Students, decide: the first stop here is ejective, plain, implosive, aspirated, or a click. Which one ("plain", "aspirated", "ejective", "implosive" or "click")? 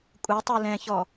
ejective